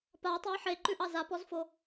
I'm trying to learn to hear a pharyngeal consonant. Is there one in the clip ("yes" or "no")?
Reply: yes